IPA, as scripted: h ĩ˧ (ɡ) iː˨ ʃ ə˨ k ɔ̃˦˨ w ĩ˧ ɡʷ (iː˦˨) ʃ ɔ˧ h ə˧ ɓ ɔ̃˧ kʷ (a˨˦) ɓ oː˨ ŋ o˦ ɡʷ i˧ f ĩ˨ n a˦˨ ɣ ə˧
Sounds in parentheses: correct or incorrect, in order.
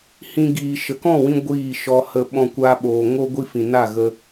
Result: correct, correct, incorrect

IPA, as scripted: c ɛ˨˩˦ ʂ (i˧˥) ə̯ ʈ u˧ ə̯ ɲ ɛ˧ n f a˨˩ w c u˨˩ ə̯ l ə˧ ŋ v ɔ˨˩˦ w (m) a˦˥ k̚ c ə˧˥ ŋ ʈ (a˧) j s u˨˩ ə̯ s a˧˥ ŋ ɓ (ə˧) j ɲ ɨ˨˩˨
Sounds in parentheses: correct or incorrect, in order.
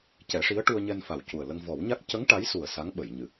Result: correct, incorrect, incorrect, incorrect

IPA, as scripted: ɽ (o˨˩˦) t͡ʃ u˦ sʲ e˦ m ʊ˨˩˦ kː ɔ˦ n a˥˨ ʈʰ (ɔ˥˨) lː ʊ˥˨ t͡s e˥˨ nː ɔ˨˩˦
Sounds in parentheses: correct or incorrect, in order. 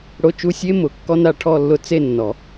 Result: incorrect, correct

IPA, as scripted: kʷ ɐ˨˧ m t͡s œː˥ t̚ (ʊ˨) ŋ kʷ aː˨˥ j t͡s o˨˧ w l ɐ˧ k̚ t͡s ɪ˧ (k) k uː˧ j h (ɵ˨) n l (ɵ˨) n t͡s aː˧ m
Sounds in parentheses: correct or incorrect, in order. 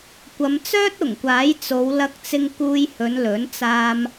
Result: incorrect, incorrect, incorrect, incorrect

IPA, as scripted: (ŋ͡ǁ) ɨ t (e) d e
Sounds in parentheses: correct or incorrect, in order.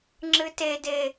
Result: correct, correct

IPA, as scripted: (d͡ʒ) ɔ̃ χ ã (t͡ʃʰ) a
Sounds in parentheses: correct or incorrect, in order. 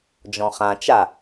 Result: correct, incorrect

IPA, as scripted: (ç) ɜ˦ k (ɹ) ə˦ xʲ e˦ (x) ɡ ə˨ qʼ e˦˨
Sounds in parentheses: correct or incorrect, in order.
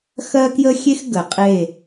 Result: incorrect, incorrect, correct

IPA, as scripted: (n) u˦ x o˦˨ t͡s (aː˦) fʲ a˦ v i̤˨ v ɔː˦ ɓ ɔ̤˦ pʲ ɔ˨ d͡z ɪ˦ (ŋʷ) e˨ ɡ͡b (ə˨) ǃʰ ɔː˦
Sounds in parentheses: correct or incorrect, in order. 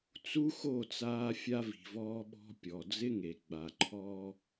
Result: incorrect, correct, incorrect, incorrect

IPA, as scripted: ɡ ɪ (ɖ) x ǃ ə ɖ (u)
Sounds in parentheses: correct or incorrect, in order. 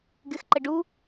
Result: incorrect, correct

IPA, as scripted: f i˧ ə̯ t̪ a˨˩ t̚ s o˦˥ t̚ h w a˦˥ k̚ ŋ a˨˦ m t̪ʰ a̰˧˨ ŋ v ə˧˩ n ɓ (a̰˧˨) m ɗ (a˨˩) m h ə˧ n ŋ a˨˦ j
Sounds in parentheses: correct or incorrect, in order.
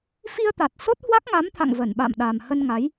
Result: correct, correct

